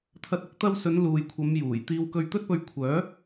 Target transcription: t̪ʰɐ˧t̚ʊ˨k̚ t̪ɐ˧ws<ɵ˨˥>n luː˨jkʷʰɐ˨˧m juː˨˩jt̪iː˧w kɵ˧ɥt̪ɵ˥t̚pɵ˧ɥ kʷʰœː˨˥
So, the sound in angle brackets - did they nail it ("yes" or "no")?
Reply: no